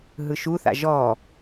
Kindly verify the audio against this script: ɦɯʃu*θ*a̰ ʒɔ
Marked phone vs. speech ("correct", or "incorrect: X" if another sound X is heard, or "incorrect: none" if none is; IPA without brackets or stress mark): correct